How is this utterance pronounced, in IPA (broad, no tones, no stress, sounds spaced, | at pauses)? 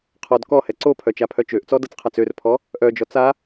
qʰ ɔ d k ɔ h ɛ ǀ o pʰ œ t͡ʃ a pʰ œ t͡ʃ ø ʔ t͡s ɔ d ɤ t͡s qʰ a t͡s ø r pʰ ɔ | ʔ œ d͡ʒ ɔ t͡s a